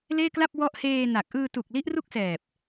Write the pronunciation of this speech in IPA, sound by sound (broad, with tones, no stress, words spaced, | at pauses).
leː˥˩kla˥˩p̚ wɔ˦˥ʔheː˧ na˨˩k̚ ʔɯː˧tu˨˩k̚ li˦˥ʔru˥˩k̚sɛː˨˩p̚